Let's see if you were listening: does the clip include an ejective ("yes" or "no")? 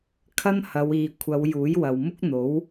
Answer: no